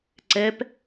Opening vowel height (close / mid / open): mid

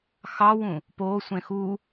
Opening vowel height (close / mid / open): open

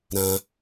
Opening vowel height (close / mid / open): open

